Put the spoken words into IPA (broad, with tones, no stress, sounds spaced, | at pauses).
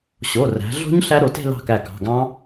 ɕ o˩˧˩ r æ̤˩˧ ɮ o̤˦˥ ɲ ɬ æ˦˥ ɾ o˩˧ t e̤˥˧ l ɑ̤˥˩ k æ˧˩ k ɑ̤˩˧˩ ɡ ɑ̃˦˥